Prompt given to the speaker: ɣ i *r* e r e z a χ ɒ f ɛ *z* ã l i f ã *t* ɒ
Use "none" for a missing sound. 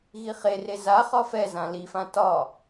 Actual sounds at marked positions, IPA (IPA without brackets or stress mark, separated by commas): χ, z, t